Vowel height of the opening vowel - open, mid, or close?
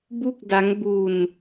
close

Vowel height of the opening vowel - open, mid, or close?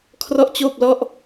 mid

